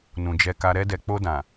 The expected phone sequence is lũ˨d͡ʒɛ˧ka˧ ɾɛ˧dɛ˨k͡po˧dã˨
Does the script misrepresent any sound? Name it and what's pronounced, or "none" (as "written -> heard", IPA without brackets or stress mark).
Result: l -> n